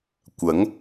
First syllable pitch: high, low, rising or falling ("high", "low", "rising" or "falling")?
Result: rising